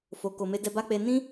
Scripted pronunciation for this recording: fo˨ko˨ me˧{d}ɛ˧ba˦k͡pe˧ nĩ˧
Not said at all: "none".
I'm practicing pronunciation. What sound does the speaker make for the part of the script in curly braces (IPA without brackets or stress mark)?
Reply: d